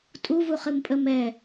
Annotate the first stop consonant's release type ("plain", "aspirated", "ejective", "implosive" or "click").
ejective